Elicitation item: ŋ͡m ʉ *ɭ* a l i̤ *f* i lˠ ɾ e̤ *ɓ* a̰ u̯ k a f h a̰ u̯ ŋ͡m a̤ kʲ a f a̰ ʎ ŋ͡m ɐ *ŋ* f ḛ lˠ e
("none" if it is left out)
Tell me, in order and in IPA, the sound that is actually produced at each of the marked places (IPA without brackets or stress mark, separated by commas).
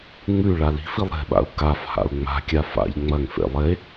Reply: ɭ, f, ɓ, ŋ